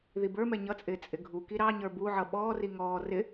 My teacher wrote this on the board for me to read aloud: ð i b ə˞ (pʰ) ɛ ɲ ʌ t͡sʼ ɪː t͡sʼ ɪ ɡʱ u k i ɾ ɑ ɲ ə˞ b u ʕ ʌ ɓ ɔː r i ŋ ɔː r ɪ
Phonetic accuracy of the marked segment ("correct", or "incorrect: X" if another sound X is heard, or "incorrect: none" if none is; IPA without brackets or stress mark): incorrect: m